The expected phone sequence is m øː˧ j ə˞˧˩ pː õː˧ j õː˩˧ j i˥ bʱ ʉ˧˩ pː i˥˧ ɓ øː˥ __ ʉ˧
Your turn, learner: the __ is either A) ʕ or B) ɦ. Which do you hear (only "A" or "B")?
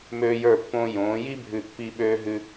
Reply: B